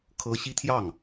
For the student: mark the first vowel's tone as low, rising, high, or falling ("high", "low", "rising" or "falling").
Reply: high